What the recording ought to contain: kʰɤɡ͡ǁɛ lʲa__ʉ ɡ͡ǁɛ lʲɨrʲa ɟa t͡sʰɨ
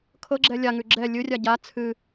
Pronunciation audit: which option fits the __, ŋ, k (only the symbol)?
ŋ